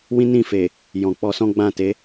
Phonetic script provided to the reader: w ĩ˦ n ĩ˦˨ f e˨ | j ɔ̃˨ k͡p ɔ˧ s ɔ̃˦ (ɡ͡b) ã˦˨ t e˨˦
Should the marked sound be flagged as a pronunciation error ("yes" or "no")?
no